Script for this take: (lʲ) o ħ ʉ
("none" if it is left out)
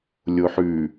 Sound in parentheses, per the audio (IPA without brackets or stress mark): lʲ